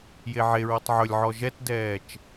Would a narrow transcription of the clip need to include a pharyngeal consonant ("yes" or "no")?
yes